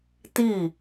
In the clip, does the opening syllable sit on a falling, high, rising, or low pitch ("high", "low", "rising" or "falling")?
falling